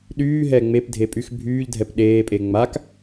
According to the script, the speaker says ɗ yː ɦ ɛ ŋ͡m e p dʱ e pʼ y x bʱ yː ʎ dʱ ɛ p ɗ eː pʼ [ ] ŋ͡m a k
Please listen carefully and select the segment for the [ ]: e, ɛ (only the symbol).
e